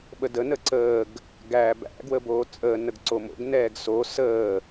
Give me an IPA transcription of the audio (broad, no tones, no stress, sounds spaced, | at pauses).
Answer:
ɓ ə d ə n ə ǀ əː ɡ | ɡ æː b æ̰ ɡ w ə b oː t͡sʼ əː n ə ɡ ǀ o m o̰ ɡ n ɛː ɡ s o s əː